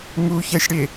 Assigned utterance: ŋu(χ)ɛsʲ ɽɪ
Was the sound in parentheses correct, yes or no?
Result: no